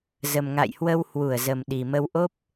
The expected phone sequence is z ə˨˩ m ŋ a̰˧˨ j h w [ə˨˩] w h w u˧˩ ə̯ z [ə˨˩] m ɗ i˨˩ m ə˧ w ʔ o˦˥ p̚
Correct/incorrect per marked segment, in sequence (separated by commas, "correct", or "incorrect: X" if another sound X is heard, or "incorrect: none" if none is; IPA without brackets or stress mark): incorrect: ə˧, correct